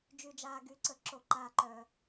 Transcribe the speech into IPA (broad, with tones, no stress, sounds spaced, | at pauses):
d͡ʒ y˨ d͡ʒ aː˨ ɡ y˨˩˦ ǀ ə˨˩˦ ǁ o˨˩˦ ǃ aː˨ ǃ œ˨